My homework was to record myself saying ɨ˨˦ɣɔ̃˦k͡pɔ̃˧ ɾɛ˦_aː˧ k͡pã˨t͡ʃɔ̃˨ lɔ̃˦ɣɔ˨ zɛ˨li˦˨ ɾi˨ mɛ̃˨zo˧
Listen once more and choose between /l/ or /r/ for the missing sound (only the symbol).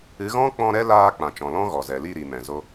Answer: l